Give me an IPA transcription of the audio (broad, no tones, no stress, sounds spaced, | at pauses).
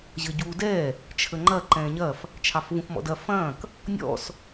ʑ ə ɟ uː d ɛ | t͡ʃʰ ə ŋ͡ǃ ɐ ǃ ɛ̃ː ɲ ɐ f | t͡ʃʰ ɑ f v ũ f m ɔ̰ d ɐ f ɐ̃ː k | nʲ ɔ̰ s